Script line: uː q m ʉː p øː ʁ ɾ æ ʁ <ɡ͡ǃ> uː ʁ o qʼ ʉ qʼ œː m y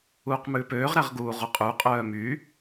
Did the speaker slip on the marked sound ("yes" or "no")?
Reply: yes